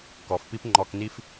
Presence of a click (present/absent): present